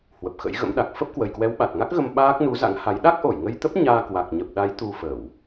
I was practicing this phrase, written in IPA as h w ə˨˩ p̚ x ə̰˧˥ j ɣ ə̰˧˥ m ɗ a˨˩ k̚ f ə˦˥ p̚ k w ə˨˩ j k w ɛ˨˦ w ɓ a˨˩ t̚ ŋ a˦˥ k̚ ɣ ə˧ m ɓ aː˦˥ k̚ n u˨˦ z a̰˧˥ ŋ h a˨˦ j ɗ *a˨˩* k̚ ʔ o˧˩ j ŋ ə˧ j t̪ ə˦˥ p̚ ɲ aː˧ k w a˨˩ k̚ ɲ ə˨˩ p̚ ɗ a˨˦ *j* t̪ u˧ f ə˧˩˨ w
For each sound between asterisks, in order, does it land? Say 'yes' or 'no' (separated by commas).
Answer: no, yes